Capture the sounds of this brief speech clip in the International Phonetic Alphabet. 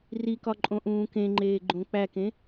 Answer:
r i k ɒ ǃʼ õ ʔ ũː k ẽ ŋ͡ǃ eː ɡ͡ǃ õ k͡p æ k ẽ

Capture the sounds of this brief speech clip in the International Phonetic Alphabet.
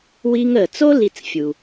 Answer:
w i˧ ŋ ə˩ t͡s o˥ l i˧ t͡s fʲ u˩

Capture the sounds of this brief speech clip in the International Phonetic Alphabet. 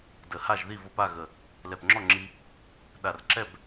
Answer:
d ə˨˩ h a˥˨ ʒ ð i˥˨ v o˧ p a˥˨ ɣ ə˨˩ | l ɛ˨˩ p ŋ͡ǁ ɔ˥˨ ŋ͡ǁ i˧ | ɗ a˨˩ r ǁ ɛ˥˨ b

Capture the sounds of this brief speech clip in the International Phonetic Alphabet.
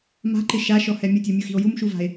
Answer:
m a̤ ǃ ɪ ʃ a ʃ ɔ h ɛ mʲ ʊ tʲ o mʲ u x i̤ o̯ j u m ʃ u v a̤ e̯

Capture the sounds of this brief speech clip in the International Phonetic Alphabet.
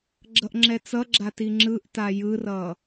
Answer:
ɡ͡ǁ ʌ ʔ ŋ͡ǁ ɛ t͡s ʌ ɡ͡ǁ a t i ŋ͡ǁ ɯ ʔ t a j ɯ r ʌ

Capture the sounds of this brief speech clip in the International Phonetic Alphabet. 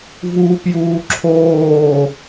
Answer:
v uː p j uː ǁʰ oː

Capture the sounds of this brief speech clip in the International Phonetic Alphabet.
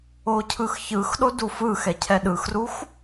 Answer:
o cʰ ɯ x ç ɯ x ɗ o d u f ɯ x ɛ cʰ ɛ ɗ ɯ x r u x

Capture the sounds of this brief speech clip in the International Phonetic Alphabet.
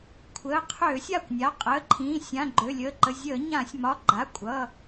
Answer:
kʷʰ əː˩˧˩ qʰ øː˧˩˧ sʲ a˩˧˩ kʷ nʲ a˩˧˩ qʼ əː˩˧˩ ǃʰ ĩː˩˧˩ sʲ ã˩˧˩ ɡ͡ǃ ø˩˧˩ lʲ əː˩˧˩ ǃ ə˩˧˩ zʲ əː˧˩˧ ɲ ã˧˩˧ sʲ m ɒ˩˧˩ ɡ͡ǃ a˩˧˩ kʷʼ ʌ˩˧˩

